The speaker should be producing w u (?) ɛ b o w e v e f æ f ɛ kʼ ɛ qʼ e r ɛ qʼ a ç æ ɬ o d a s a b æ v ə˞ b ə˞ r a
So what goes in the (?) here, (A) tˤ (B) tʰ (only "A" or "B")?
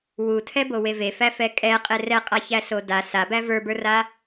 B